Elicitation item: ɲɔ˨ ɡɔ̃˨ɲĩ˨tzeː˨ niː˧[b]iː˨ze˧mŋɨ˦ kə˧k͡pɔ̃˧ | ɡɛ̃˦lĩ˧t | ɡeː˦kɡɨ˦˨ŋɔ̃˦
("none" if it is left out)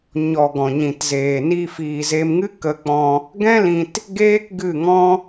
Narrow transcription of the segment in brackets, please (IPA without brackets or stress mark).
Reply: f